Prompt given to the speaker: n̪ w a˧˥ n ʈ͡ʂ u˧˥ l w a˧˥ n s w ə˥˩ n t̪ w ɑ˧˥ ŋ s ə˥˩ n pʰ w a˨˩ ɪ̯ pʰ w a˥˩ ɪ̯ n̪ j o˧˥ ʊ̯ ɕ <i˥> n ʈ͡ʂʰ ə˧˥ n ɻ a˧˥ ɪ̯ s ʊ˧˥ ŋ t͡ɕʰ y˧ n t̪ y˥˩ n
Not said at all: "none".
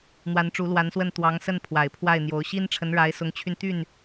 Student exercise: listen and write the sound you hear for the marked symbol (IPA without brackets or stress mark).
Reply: i˥